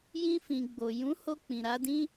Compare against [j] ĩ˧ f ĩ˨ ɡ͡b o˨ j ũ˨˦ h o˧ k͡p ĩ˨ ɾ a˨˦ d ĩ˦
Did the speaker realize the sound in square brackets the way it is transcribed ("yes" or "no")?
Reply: yes